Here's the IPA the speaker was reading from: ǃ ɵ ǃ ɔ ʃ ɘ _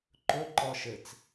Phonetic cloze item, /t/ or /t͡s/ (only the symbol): t͡s